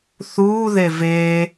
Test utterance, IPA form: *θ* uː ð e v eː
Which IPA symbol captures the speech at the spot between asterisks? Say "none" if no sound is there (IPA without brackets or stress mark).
θ